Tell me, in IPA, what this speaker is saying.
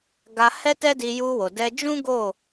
ɡa˧ hɛ˦tɛ˦di˧ ju˧wo˨dɛ˧d͡ʒũ˦ ɡo˦˨

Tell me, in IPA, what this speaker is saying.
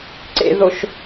ǀḛðoʃ

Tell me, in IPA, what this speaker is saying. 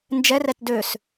nd͡ʒɛrɛt døs

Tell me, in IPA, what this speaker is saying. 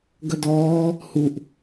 ɡɐdɔː | huʔ

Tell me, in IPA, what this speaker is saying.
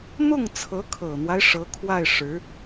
n̪ʊ˥˩ŋt͡sʰɤ˧˥kʰɤ˨˩n̪wa˦ɪ̯ ʂɤ˧˥kʰwa˥˩ɪ̯ ʂɻ̩˧˥

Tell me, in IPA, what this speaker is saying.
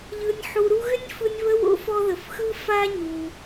ʎɯ˨nʲħu˨ɾu˦ɣʏ˥nʲ fɯ˦nʲβə˥wo̰˥f ɔ˦ðə˩fxɯ˥ fa˥ɲu˩

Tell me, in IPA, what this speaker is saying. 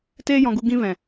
teː˦jɔ̃˧ɡu˧ ɡĩ˧ vɛ̃˨

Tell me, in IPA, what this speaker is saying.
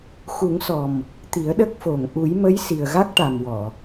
xu˨˩˦ŋsɔ˨˩m | t̪i˨˩˦ə̯ɗə˦˥k̚fo˨˩ŋ ʔu˨˩˦jmə˧˥j si˨˩ə̯ɣa˦˥k̚ʈa˨˩m wɔ˨˩˨

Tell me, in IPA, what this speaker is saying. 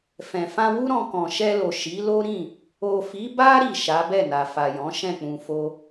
fɛ̃˨ fã˧wu˦ɾɔ̃˧ kɔ̃˨ʃɛ˧lo˨ ʃi˨˦lo˦ɾĩ˦˨ | o˨fi˨˦ba˦ ɾi˦˨ʃa˨˦ bɛ˦˨na˨fa˨jɔ̃˨˦ ʃɛ̃˦˨k͡pũ˨fo˧

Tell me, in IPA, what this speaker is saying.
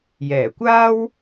jɛː˨˩kʷaː˥w

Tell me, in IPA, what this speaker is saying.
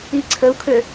iǀʰəu̯kʰø

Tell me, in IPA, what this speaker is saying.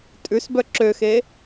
tʼʉsbœ ǁøxe

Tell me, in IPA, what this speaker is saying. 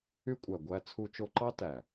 y˦kʷʼæ˨ ɡʷæ˦t͡sʰu˦t͡ʃo˦ ǃɑ˦tæ˨

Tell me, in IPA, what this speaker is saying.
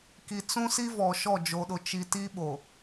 ki˨t͡sũ˦si˦ vɔ˨ʃɔ˦˨ d͡ʒo˨ɗʊ˨ t͡ʃi˨ ti˦ɓo˨

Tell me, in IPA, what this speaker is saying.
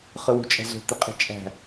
χɯwṳt͡ʃʼæ̤zo̤ t̪iqʼe̤t͡ʃʼæ̤

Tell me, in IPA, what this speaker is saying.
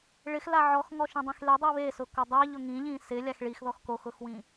ɭɪxla ʕɔxŋɔʃĩdˤĩx ledˤi βesʊko dˤaʎʊ ŋĩʎĩ sɪlʲax ɭixðɔx koxʊxwĩ

